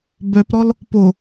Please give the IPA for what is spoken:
bœpɾɔl | po

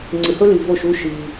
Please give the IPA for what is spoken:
ŋ͡ǀɨ˩hɵ˥li˩ vo˥˩ʃu˥ ʃi˩

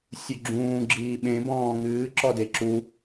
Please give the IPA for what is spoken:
sʲuɡ͡ǁũː ɡ͡ǁiːɓẽ bɔ̃ːŋɨː ǁɔdeǁu

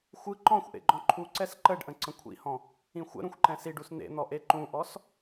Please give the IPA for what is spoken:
xʷɯ ǃɔ̃xʷʔḛɡ͡ǃɔ̃ ǃʰuǀɛs ǃəɖʔə̃ ǀə̃kʷʰḭhɔ̃ | ĩxʷə̰ ɾũxʷǃɛ̃siɖus nḛn̪ɔ ʔeǃũʔɔs

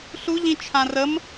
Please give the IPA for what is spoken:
ɬuʎĩt͡ʃʰã rəm

